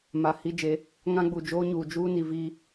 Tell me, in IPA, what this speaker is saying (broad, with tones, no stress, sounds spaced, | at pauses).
m a˨ h i˦ d͡ʒ e˨˦ | ŋ ã˦ ɡ͡b u˨ d͡ʒ oː˦ ɲ uː˨ d͡ʒ uː˦ n i˨ v i˦